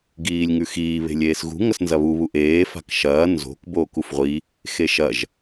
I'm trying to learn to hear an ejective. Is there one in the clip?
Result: no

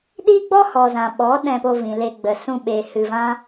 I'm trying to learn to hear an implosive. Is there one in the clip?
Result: yes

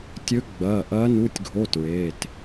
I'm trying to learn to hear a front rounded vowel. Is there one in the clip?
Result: no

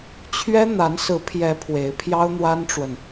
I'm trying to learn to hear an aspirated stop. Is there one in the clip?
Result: yes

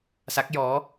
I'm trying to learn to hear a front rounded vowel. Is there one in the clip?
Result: no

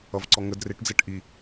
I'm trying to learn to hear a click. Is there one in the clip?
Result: yes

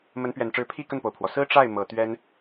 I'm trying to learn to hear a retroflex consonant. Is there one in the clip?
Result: yes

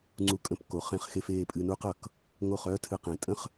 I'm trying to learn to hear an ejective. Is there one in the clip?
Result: yes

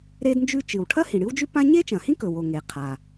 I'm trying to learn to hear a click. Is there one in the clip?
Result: no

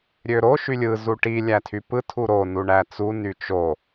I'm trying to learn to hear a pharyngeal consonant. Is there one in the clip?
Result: no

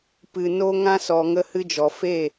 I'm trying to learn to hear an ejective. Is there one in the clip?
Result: no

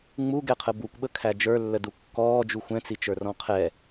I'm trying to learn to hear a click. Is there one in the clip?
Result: no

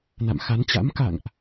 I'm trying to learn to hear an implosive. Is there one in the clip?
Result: no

